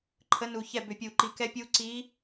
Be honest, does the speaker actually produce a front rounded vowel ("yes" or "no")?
yes